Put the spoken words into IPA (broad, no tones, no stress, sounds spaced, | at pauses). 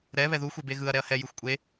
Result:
ɾ ɛ β ɛ ð u xʷ e b e ɣ ɯ ɐ̯ ɾ ɛ ɐ̯ h ɛ j ɯ xʷ kʷʼ e